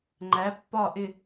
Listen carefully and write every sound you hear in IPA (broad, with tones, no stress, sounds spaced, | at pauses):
ŋ͡ǃ æ˩˥ pː ɒ˥˨ ʔ ɪ˥˨